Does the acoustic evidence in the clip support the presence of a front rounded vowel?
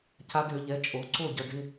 yes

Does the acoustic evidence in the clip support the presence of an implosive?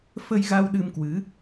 yes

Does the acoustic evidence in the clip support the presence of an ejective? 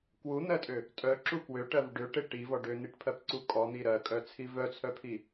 yes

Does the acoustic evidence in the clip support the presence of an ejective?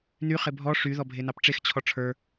no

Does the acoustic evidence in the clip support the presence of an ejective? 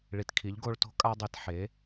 yes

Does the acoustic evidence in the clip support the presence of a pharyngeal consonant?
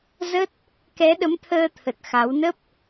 no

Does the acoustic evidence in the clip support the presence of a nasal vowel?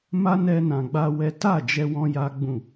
yes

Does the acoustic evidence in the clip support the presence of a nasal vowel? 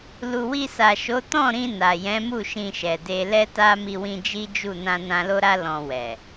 yes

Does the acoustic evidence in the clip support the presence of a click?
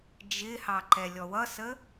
yes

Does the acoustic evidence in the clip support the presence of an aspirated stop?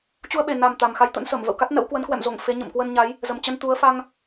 no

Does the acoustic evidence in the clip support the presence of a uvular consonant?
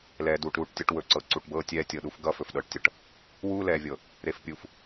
no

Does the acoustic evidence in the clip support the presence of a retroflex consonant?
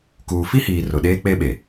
no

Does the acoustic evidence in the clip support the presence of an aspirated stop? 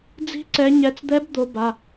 no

